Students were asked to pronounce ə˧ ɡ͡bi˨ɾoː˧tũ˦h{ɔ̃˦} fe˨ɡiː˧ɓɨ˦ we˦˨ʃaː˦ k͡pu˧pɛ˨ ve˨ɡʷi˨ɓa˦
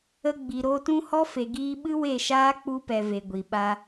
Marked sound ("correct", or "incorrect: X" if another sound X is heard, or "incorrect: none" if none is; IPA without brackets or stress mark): incorrect: ɔ˦